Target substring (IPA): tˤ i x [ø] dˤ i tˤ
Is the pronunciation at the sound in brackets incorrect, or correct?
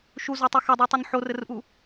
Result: incorrect